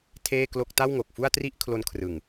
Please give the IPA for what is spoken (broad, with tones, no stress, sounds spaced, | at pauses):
tʰ eː˥˩ k l o˥˩ k̚ t a˥˩ w ŋ o˨˩ k̚ f u˥˩ a̯ t r i˥˩ ʔ kʰ l o˦˥ n kʰ r ɯ˨˩ ŋ